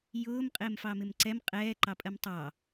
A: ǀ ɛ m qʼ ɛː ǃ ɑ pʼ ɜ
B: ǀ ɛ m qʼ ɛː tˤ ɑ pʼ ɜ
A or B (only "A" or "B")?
A